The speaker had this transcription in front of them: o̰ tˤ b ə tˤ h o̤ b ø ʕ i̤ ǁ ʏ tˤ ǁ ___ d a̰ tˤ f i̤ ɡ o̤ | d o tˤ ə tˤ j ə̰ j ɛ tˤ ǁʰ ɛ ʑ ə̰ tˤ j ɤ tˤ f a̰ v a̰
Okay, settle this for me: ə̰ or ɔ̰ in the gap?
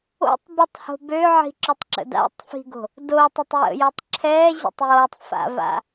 ə̰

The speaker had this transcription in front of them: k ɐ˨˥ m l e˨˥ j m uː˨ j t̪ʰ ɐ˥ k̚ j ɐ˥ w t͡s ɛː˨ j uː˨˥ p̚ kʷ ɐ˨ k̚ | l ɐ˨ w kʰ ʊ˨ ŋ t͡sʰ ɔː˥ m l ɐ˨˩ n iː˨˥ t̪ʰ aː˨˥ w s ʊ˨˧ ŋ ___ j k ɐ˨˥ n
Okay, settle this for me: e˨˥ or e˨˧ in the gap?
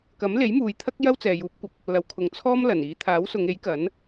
e˨˥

